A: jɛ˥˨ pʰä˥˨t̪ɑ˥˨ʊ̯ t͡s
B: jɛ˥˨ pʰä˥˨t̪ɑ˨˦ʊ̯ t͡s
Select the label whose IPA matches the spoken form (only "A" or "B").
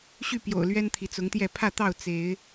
A